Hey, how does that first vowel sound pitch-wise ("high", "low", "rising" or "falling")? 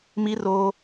rising